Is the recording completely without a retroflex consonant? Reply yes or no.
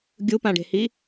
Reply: no